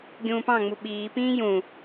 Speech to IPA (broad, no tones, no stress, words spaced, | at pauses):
ɡʲũːpɑ̃ŋ͡mu ɓiːpĩː jũ